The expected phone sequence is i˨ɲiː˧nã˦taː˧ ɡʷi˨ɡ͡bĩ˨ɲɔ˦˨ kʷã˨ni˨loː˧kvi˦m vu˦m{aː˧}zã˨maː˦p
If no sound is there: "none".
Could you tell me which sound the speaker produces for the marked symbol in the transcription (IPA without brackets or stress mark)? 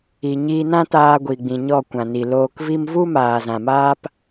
aː˨